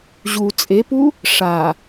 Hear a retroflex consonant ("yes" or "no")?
yes